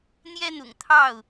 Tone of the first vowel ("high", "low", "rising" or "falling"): high